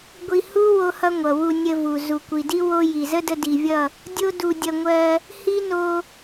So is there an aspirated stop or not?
no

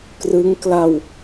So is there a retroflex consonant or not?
no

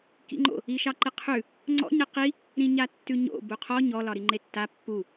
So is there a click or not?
yes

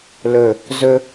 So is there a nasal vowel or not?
no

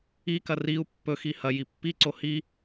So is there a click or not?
yes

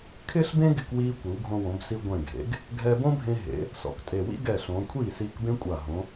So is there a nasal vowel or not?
yes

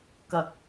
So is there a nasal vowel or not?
no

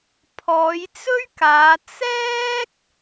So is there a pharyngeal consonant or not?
no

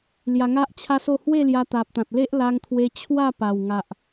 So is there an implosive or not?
no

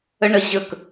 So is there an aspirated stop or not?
no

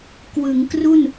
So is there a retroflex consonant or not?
no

